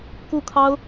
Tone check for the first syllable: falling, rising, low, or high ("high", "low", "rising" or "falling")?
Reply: falling